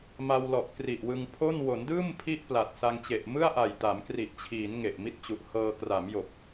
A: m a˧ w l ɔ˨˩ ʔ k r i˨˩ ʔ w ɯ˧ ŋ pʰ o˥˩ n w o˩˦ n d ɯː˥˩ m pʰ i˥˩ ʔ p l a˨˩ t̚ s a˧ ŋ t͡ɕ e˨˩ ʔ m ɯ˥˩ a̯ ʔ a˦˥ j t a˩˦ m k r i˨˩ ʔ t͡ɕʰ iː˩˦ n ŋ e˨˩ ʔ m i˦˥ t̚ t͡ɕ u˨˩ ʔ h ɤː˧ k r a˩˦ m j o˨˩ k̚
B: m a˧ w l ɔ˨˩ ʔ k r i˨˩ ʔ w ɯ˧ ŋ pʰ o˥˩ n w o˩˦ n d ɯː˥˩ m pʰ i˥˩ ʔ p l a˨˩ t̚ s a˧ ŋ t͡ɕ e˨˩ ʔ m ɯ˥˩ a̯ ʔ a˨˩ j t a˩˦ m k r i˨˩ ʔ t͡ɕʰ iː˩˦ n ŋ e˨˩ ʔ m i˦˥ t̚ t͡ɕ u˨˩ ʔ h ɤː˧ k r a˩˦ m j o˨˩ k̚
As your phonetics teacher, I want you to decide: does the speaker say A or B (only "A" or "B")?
B